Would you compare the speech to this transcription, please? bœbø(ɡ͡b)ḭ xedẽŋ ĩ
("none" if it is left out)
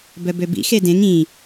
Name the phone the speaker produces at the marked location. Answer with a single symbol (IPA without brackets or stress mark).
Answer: b